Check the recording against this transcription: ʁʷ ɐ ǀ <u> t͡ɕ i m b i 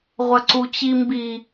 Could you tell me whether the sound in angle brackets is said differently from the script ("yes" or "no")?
no